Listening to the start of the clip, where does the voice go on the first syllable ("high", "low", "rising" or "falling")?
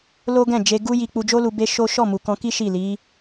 high